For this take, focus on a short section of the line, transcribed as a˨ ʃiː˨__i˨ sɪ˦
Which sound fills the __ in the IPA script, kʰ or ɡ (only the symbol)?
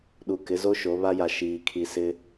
kʰ